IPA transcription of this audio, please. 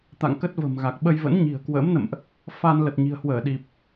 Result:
t̪ a̰˧˨ ŋ k ə˦˥ t̚ v ə̤˨˩ m ɣ a˨˩ k̚ ɓ ə˧ j v ə̰˧˥ n ɲ i̤˨˩ ə̯ k w ə̰ː˧˥ m n ə̰˧˨ m ʔ | f a˧ n l ə˨˩ t̚ ɲ i̤˨˩ ə̯ h w əː˧˩ ɗ i˨˩ p̚

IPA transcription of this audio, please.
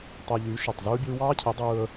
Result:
tˤ e˧ ʎ y˨˦ ʃ e˨ tˤ z ɯː˦ bʲ ɯː˦ w ɑː˦ cʰ i˨˦ dˤ ɯː˧ ə̯

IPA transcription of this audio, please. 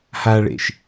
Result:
h a ɭ ḛ ʃ

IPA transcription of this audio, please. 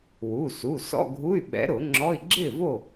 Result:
w u˩˧˩ s u˩˧˩ s ɔ̰˧˥˧ ɡʱ u˧˥˧ y̯ ɓ ɛ̰˨˥ ɾ ʊ˨˩˦ ŋ͡ǁ ɔ˧˥˧ i̯ ɡ͡ǁ ɪ˥˨ v o˥˨

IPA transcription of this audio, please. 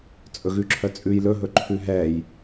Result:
t͡sʼ ɵ ɣ ʉ ǁʰ œ t͡sʼ ʉ j l ɵ ɦ ɵ ǃʰ ʉ ɦ ɛ j

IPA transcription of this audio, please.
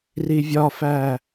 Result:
r i vʲ ɒ f æ

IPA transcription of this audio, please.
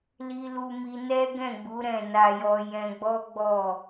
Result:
l i˧ l u˧ m i˧ n ɛ˦ ɡ ɛ̃˦˨ ɡ͡b u˨˦ ɾ ɛ̃˦˨ n a˧ j ɔ˧ j ɛ̃˧ ɡ͡b ɔ˦ ɡ͡b ɔ˦˨

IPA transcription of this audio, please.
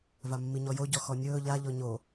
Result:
v a mː i ɲ ɔ j o ɟ ɔ x ɔ nʲ ɵː ʎ a ʎ ɔ ɲ o

